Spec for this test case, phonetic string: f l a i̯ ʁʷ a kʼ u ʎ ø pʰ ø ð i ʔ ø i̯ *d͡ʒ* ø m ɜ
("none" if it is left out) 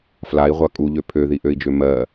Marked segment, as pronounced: d͡ʒ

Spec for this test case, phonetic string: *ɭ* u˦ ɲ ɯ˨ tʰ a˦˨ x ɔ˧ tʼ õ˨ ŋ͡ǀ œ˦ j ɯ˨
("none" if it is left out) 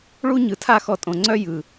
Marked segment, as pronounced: ɭ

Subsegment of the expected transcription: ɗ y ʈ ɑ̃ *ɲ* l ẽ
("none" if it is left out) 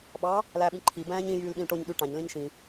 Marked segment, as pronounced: ɲ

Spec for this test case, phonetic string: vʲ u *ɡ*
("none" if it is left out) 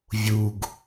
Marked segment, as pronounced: ɡ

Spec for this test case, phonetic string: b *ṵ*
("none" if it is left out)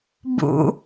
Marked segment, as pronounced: ṵ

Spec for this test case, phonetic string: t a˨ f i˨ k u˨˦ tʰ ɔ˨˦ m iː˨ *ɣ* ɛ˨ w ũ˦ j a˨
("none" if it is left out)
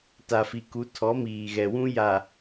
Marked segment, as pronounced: ɣ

